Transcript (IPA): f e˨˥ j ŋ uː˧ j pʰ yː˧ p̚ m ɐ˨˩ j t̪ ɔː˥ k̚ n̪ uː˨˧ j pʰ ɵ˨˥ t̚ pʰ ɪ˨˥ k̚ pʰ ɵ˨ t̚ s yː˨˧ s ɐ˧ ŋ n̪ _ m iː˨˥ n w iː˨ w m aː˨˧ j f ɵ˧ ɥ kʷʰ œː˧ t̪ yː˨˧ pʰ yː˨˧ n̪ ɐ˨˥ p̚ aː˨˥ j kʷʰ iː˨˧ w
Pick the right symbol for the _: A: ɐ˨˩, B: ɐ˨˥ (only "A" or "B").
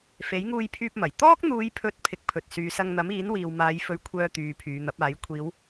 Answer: B